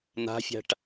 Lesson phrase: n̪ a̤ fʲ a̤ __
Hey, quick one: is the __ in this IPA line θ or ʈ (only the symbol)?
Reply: ʈ